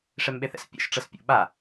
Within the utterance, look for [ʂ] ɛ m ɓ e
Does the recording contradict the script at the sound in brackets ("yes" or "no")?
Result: no